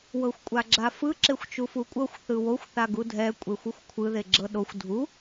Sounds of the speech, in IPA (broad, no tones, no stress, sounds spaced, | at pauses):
w ɤ xʷ kʷʼ a ɡ͡ǁ a f ɯ ǁ e xʷ t͡ʃ u f u kʷʼ ɤ xʷ θ ɯ w o xʷ θ a ɡ u dʱ ɛ kʷʼ e xʷ ɯ xʷ kʷʰ ɯ ð e ɡ͡ǁ ɤ ɗ o xʷ dʱ u